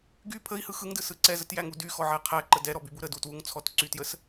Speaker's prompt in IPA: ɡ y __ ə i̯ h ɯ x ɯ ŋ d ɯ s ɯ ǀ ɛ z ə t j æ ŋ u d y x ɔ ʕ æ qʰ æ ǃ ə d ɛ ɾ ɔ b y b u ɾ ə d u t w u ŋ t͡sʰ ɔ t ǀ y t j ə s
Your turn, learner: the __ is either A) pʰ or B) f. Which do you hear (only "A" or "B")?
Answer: A